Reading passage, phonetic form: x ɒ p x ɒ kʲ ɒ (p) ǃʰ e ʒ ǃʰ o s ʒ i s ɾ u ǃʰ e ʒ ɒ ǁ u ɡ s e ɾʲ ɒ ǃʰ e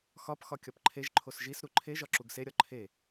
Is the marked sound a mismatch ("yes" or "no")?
no